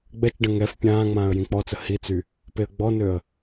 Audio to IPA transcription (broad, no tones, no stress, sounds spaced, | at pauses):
ɡ͡b ɛ t͡ʃ ɖ ə̃ ŋ ɛ f pʲ ãː ŋ͡m ãː ə̯ j ĩ k͡p ɔ t͡s ə h i t͡s y | p e ə̯ ɡ͡b ɔ n ø ə̯